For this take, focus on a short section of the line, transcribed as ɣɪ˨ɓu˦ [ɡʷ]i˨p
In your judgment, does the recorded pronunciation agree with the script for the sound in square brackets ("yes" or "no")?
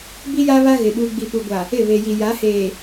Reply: no